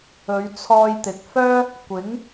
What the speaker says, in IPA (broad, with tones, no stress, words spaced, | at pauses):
ɵ˨˧ɥt͡sʰɔː˧jt̪ɪ˨k̚ fœː˥ | kʷɪ˨˥ŋ